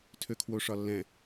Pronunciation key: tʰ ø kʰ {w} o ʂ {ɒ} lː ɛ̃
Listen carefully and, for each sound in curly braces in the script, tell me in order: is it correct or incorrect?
correct, correct

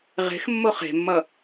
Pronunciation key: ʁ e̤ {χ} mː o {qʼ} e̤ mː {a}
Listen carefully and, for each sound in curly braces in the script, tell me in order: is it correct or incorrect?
incorrect: x, incorrect: χ, incorrect: ʌ

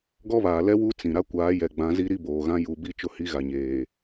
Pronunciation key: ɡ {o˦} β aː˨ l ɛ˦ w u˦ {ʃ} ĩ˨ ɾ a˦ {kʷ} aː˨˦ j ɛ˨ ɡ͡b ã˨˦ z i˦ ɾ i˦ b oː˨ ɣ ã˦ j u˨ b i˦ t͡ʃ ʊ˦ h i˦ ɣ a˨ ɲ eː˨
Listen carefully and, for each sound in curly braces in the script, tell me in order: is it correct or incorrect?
incorrect: ɔ˦, incorrect: t͡s, correct

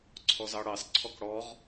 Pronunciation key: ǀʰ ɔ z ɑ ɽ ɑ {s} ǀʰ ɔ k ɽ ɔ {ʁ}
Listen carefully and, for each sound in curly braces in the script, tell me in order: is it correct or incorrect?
correct, correct

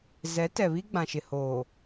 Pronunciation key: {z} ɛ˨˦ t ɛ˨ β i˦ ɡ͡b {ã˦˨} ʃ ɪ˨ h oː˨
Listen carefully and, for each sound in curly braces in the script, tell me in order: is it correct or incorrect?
correct, incorrect: ã˨

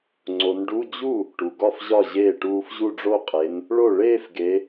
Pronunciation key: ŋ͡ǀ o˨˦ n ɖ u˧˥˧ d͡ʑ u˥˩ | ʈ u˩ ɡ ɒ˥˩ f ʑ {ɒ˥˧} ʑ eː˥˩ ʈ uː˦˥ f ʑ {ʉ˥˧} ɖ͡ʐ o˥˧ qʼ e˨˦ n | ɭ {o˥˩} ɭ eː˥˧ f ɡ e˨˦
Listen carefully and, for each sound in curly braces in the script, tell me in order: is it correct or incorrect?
incorrect: ɒ˥˩, incorrect: u˥˧, correct

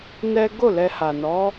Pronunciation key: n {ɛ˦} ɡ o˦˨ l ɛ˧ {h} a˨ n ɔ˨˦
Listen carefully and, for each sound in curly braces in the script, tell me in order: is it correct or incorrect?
correct, correct

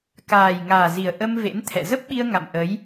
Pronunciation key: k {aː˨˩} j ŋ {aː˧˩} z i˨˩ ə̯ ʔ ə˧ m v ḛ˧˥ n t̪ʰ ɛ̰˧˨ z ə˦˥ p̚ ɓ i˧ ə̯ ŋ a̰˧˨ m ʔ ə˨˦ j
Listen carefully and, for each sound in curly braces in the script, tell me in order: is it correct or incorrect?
correct, incorrect: aː˨˩

